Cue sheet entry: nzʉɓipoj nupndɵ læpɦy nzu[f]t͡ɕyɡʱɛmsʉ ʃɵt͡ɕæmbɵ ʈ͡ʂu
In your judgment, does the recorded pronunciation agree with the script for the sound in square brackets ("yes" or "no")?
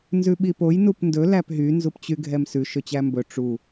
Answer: no